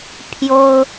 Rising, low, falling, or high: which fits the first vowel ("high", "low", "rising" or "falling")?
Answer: high